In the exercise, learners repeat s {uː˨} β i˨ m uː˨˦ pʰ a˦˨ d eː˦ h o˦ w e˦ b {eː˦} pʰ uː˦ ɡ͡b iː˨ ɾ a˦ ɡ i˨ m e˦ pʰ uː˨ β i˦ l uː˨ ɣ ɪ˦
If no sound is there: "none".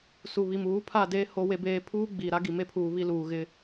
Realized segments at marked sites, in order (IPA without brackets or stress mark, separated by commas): u˨, eː˦